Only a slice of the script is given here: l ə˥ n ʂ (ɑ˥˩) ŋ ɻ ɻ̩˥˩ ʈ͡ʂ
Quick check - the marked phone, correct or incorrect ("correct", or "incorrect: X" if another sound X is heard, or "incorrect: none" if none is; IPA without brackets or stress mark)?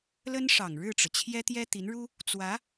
incorrect: ɑ˨˩